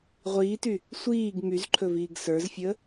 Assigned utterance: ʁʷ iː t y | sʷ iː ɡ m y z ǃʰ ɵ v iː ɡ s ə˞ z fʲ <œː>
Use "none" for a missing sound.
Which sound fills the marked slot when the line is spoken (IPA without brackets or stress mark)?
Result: əː